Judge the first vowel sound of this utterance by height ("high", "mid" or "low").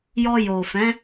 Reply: mid